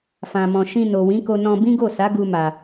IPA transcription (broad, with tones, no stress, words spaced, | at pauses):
fã˨mɔ̃˨ ʃĩ˧no˨wĩ˨˦ko˧ nɔ̃˧ bĩ˦ɡo˦˨sa˨˦ ɡu˧ma˨